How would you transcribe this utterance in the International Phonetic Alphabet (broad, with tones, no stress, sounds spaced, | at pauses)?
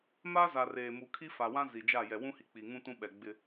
m a˦ z a˨ r eː˨ m u˨ kʰ i˦ f a˨ w ã˦ z i˨ d͡ʒ a˦˨ j ɛ˨ w ũ˦ h i˨ k͡p i˨ ŋ ũ˦ t ũ˦ ɓ ɛ˨ ɡ͡b ɪ˦